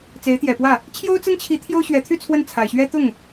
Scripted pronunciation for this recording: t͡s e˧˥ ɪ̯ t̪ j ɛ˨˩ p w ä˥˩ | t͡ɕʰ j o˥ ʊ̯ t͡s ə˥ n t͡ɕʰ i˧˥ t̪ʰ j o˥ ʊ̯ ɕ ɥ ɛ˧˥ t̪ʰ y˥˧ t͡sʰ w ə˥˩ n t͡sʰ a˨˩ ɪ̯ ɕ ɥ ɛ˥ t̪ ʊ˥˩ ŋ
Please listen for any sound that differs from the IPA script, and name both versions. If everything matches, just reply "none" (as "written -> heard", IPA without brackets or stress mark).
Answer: none